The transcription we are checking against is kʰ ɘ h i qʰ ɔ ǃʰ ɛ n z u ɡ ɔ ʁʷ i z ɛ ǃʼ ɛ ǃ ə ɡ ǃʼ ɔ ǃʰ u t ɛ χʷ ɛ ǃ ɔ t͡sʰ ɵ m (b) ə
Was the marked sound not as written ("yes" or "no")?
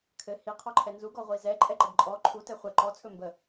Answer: no